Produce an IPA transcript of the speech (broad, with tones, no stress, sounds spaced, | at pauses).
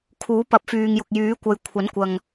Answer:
kʰ uː˨˥ p ɐ˨˥ p̚ f yː˨ ŋ j ʊ˨ k̚ j yː˨˥ kʷ ɐ˨˧ j kʷʰ ɐ˨˥ n kʷ ɐ˨ ŋ